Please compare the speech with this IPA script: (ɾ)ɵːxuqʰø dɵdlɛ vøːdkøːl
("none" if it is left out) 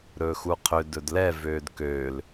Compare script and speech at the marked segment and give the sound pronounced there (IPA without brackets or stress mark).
ɾ